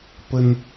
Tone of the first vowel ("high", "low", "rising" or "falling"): high